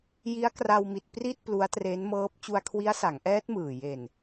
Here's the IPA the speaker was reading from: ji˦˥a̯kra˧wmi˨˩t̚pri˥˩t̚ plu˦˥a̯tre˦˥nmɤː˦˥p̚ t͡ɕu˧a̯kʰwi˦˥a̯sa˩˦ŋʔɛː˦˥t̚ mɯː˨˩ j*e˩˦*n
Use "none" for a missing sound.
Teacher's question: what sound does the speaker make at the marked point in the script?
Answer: e˨˩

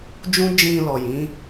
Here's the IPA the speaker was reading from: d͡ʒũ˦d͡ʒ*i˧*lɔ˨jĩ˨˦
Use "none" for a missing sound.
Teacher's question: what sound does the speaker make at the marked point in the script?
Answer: ĩ˧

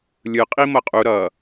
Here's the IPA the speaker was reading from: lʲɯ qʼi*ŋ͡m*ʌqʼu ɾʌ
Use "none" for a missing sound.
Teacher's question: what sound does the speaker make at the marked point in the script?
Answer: m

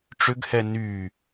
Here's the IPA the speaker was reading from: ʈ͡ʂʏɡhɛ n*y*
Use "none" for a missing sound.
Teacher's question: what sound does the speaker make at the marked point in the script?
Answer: y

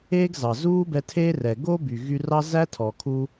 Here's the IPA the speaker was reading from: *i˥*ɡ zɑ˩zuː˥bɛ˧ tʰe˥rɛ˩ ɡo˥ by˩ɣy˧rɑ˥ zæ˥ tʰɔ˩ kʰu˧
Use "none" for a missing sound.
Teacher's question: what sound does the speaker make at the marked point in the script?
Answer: e˥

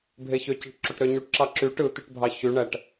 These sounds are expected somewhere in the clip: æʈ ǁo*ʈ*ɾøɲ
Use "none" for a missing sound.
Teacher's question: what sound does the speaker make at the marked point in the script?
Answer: ʈ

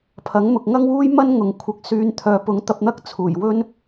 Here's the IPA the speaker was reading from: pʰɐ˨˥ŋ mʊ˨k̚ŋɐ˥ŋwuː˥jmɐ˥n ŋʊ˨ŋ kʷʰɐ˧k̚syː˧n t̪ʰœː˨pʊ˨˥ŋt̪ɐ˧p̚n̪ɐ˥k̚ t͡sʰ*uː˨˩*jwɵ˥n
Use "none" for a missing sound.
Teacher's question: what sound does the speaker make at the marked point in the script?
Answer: uː˨˩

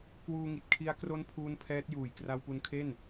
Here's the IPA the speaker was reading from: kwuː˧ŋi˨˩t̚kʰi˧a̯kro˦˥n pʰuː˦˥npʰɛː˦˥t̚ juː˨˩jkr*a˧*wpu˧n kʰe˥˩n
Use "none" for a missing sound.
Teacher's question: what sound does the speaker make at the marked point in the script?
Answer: a˧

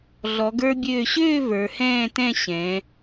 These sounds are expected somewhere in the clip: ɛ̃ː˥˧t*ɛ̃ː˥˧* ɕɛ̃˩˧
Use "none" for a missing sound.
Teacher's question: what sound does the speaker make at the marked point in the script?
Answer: ɛ̃˥˧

